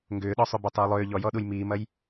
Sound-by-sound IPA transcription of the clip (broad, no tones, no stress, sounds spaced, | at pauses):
ŋ ɡ ʏː ɗ ɔ sˤ ʏ b ɐ tˤ ʏː lˠ ʏː ʎ ɔ j ɔ ɗ u j m iː m ɐ j